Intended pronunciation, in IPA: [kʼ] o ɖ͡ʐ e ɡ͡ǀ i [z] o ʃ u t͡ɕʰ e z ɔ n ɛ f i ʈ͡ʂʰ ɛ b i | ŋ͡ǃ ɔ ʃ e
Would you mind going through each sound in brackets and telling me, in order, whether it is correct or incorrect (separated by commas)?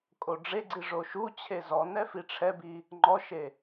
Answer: correct, incorrect